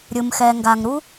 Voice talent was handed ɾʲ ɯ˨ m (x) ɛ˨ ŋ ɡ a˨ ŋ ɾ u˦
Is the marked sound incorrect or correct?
correct